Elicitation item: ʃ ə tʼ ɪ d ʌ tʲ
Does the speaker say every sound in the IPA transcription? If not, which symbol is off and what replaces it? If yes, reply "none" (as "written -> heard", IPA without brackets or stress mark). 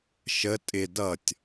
none